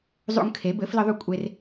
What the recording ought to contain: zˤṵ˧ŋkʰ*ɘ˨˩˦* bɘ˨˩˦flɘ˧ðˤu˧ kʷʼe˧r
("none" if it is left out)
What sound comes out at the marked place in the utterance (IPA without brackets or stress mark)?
e˨˩˦